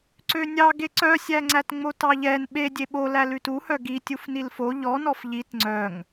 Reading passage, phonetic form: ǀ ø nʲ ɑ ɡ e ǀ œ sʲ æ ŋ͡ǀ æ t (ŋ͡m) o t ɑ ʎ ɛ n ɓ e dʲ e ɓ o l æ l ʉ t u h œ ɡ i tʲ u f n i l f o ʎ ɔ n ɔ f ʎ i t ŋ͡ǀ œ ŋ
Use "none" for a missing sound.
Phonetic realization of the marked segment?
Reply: ŋ͡m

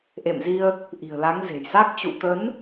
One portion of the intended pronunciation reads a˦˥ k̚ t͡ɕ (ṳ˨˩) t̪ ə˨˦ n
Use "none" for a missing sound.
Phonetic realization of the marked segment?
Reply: ṵ˧˨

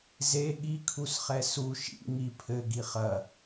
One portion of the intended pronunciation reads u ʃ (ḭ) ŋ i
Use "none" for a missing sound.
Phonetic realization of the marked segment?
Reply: ḭ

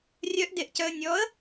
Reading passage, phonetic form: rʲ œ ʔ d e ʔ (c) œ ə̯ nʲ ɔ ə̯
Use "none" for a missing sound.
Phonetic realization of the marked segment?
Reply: c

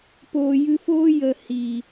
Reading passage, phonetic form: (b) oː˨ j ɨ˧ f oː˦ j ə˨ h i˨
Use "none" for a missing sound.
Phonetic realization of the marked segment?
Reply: p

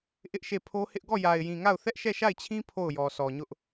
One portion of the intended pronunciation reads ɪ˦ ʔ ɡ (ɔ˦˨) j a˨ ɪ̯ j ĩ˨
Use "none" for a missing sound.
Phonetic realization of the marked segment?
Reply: ɔ˦˨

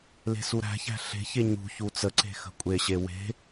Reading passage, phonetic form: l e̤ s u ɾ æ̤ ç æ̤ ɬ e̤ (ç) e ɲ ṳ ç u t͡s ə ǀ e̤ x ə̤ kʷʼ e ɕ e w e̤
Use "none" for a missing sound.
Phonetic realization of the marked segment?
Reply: ç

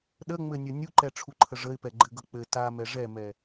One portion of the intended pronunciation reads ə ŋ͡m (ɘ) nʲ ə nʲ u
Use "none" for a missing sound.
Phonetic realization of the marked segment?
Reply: ɘ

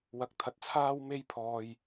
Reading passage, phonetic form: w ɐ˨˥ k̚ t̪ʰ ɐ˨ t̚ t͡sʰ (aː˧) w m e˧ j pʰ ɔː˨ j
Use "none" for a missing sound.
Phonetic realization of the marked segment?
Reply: aː˧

